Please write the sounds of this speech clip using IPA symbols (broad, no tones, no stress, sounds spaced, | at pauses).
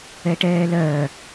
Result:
ɛ ʈ ɛː l ɜː